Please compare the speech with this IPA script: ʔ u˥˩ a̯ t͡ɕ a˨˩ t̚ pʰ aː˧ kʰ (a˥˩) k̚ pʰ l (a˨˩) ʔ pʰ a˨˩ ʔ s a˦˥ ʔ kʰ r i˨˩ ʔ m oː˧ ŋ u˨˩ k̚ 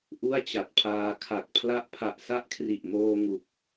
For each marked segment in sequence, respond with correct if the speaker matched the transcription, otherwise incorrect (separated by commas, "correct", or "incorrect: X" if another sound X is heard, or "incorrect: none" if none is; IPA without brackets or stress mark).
incorrect: a˨˩, incorrect: a˦˥